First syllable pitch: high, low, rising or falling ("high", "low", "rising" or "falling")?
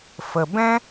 low